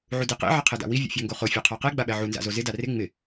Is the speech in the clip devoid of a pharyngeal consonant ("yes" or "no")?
no